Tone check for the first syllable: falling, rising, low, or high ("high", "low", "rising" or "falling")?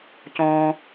low